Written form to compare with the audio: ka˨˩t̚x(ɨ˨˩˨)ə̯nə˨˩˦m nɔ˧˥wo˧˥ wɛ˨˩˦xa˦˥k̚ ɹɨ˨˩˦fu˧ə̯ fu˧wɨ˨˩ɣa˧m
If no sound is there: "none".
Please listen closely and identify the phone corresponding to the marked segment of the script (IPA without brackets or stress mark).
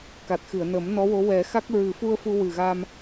ɨ˨˩˨